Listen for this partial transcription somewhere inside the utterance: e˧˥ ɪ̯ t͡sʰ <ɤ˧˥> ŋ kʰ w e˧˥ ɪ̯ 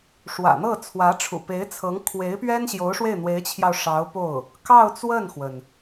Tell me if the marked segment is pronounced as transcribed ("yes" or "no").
yes